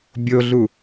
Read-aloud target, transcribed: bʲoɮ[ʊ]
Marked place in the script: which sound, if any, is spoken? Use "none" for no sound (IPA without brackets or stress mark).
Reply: u